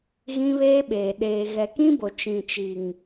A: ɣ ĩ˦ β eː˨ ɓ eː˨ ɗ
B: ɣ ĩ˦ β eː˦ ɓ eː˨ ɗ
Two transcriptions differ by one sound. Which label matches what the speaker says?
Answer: B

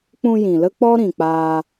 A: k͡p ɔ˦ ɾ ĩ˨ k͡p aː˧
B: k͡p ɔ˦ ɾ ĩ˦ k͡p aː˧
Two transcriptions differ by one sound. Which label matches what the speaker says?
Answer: A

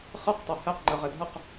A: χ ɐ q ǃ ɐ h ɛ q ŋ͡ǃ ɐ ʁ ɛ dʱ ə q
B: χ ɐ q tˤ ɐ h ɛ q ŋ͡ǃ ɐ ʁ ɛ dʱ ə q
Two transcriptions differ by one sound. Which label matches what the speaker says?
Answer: B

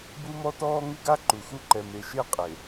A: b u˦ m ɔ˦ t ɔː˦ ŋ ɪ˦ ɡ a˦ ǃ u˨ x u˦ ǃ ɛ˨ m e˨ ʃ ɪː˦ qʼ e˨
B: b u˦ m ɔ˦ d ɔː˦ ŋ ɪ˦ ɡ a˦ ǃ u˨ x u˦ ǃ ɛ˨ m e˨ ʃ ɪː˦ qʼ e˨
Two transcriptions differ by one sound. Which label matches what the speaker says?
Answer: A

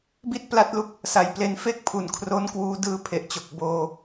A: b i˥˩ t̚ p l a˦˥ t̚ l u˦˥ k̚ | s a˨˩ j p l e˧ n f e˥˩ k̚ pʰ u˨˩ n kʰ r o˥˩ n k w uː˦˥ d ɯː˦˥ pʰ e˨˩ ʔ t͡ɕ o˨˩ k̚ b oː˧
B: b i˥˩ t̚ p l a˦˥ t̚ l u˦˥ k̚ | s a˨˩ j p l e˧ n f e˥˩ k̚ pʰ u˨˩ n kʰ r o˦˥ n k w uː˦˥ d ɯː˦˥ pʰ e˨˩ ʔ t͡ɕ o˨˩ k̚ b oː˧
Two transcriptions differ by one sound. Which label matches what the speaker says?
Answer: B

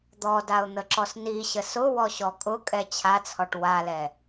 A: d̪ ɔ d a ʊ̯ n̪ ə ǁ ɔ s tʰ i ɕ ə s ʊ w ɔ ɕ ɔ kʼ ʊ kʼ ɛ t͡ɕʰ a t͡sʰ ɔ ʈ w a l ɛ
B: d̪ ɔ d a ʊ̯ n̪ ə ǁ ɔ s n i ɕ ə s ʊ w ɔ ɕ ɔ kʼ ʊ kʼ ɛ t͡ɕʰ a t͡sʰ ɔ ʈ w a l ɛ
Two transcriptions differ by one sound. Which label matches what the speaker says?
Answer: B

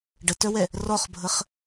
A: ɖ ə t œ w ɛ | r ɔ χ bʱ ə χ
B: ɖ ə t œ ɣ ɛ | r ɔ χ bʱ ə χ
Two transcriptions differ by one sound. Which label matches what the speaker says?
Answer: A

